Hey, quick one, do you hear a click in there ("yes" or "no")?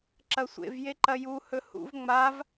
yes